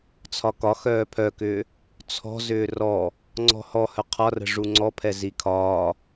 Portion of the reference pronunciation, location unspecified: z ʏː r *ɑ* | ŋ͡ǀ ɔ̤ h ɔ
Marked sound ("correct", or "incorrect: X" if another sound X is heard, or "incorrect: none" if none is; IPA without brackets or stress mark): incorrect: ɔ